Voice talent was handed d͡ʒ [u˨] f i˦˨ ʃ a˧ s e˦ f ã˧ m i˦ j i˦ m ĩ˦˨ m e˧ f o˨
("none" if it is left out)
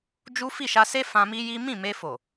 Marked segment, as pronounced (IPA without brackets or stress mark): u˦